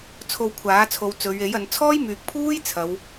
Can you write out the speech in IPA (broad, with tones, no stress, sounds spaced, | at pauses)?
t͡sʰ o˧ w kʷʰ aː˨˥ t͡sʰ o˨˧ w t͡s ɵ˨˧ ɥ e˨˥ j ɐ˨˧ n t͡sʰ ɔː˥ j m yː˨ k̚ pʰ uː˥ j t͡sʰ ɐ˨˧ w